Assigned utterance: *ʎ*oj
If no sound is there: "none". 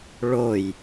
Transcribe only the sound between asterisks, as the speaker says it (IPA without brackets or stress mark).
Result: ɭ